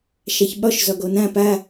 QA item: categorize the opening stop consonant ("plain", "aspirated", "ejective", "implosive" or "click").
implosive